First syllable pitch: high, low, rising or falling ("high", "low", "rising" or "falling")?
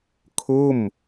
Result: falling